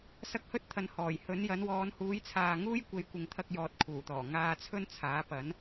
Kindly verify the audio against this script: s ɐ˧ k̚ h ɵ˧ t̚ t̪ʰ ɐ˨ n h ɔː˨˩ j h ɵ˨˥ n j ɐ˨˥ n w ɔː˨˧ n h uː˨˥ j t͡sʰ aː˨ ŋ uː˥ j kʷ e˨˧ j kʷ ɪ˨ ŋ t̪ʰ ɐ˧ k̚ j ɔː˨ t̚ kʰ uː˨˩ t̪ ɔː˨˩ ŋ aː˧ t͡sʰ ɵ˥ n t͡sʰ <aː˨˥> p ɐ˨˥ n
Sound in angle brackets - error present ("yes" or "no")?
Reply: no